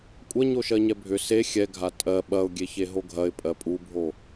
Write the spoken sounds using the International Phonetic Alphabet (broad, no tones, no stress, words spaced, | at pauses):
kʷʼɐ ɲoʃɜɲɛbʱʏ se xʲɛɡʱa tʼɜ ɓɐʊ̯ɡʲe çeɦoɡʱɐɪ̯pʼɜ pʼubʱo